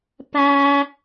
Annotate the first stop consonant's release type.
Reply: plain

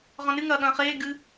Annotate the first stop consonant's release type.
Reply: implosive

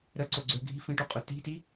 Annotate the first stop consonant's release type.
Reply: click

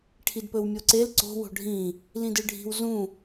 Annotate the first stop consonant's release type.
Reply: aspirated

